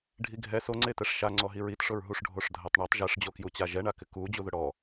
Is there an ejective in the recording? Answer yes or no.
no